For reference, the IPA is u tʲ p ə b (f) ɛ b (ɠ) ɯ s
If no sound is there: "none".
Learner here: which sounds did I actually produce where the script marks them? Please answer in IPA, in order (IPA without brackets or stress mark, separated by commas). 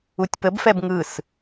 f, ŋ